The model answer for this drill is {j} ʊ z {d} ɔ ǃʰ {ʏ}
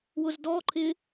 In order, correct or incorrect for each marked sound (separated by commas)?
incorrect, correct, incorrect